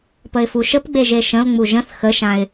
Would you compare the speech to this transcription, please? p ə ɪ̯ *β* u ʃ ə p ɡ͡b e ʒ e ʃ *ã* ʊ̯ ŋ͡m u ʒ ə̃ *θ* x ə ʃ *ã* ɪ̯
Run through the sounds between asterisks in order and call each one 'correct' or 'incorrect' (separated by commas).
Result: incorrect, incorrect, correct, correct